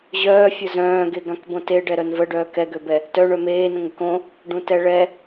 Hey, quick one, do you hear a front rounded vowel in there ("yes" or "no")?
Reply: yes